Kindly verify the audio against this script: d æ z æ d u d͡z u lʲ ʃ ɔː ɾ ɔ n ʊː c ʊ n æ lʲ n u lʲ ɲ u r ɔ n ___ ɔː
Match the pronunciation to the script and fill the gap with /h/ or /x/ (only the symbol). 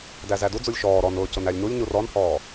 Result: h